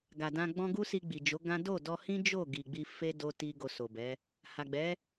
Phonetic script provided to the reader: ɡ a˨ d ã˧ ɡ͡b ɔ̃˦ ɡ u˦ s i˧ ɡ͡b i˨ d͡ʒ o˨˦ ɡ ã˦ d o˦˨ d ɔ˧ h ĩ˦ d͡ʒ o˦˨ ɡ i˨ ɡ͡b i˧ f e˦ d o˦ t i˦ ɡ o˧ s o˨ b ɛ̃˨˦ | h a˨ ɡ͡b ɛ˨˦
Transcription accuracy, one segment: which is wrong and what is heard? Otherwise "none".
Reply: ɛ̃˨˦ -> ɛ˨˦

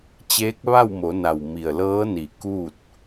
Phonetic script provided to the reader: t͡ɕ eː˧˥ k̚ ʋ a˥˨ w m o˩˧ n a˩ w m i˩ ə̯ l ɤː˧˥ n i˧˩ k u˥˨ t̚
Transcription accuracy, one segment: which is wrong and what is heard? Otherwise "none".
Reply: none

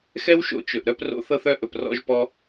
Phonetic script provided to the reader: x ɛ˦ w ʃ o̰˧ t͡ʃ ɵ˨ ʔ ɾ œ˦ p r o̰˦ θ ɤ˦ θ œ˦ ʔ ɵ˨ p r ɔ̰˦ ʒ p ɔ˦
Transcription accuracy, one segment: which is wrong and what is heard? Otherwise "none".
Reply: none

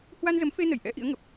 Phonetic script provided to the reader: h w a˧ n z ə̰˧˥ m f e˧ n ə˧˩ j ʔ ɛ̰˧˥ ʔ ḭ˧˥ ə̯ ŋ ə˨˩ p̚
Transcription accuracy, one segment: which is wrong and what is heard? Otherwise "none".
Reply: ə̰˧˥ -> ə˨˦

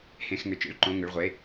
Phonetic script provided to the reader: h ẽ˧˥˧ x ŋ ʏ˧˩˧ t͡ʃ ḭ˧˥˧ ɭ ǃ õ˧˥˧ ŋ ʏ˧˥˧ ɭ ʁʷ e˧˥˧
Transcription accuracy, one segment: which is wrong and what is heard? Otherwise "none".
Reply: none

